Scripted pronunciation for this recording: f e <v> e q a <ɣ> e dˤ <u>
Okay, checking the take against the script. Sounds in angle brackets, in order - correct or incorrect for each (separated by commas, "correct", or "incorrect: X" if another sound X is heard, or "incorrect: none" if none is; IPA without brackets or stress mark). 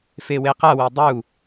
incorrect: w, incorrect: w, correct